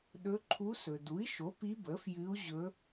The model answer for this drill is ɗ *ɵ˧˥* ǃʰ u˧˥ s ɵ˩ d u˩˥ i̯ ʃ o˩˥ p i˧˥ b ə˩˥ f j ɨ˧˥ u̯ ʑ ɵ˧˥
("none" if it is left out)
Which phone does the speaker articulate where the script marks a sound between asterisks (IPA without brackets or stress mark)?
ɵ˧˥